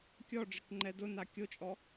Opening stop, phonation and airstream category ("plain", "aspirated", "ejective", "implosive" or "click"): plain